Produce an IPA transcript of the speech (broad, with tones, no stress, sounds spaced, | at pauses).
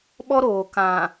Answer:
ɓ ɔ˦ ɾ oː˨ k ã˨